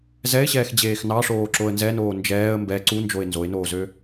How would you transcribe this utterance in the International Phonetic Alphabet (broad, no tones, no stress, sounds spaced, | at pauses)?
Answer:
z ɛ ɪ̯ ɕ ɛː x d͡ʑ eː x n ɑ ʂ oː ǁ o ə̯ n z ɛ n oː n d͡ʒ ɛː ə̯ m b ɛ ǀ u n d͡ʒ o ɪ̯ n z o ɪ̯ n oː z ø